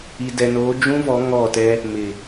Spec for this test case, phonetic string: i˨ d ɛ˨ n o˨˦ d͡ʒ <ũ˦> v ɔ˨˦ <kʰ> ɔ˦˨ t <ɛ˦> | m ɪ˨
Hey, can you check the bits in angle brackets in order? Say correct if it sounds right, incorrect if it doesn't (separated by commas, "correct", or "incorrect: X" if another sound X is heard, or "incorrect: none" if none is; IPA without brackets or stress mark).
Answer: correct, incorrect: ŋ, correct